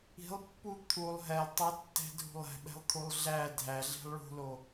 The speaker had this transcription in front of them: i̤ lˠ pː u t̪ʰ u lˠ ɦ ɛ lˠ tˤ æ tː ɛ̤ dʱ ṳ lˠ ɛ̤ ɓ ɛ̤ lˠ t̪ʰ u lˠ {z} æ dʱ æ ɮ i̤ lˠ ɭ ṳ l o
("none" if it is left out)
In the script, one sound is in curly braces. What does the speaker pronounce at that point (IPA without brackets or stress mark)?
ɮ